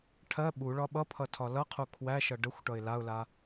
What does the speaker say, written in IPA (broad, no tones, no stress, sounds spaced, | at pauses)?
ʈʰ ɜ ɓ u ɭ ɒ ɓ ʌ pʰ ʌ tʰ ɒ l ʌ qʰ u kʰ w æ ʃ ʌ ɖ ə xʷ ʈ ʌ ɪ̯ l a ʊ̯ l a